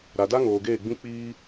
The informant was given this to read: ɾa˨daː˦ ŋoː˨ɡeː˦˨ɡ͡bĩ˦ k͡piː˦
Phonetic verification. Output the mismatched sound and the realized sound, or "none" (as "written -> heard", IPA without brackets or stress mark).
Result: aː˦ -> a˦